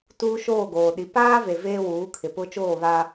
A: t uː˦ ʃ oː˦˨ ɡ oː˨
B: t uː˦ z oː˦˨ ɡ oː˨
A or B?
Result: A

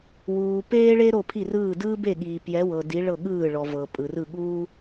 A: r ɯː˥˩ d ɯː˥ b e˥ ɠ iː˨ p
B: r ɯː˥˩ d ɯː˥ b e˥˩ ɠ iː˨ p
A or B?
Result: B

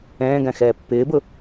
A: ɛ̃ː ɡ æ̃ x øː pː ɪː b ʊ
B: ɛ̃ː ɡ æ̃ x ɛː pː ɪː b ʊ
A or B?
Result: B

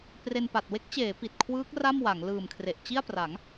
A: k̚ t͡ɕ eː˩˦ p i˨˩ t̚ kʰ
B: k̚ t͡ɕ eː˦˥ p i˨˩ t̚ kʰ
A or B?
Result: A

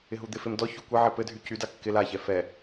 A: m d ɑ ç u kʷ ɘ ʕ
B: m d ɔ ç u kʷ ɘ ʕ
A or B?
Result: B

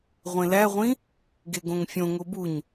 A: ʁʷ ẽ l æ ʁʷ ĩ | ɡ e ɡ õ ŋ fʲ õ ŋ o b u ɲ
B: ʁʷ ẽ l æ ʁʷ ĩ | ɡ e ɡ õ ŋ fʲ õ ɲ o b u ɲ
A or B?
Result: A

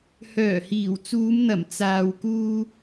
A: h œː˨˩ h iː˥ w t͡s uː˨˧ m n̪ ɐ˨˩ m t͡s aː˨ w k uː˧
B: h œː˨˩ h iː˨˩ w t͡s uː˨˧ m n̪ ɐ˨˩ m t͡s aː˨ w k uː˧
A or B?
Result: B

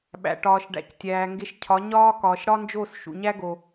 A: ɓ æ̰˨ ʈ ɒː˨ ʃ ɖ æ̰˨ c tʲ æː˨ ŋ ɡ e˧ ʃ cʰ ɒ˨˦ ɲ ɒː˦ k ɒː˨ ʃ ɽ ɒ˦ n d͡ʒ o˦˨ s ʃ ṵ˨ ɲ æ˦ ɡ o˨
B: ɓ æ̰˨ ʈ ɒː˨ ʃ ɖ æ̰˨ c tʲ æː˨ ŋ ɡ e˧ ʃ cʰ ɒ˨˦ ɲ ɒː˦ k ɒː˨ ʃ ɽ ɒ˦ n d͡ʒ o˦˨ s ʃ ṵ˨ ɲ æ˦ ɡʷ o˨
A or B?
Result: A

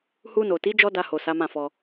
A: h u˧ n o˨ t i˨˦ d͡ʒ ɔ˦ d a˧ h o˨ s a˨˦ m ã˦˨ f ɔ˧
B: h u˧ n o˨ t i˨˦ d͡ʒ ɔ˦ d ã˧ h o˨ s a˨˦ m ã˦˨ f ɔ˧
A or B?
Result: A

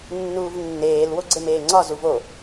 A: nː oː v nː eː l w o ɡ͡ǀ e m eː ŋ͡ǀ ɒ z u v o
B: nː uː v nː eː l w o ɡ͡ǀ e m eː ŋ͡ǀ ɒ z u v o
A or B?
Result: B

